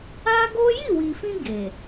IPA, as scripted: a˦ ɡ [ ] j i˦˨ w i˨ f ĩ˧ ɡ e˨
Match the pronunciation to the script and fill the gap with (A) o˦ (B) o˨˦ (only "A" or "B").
A